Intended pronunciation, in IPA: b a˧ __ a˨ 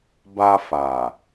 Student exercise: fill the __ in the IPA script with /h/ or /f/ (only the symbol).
f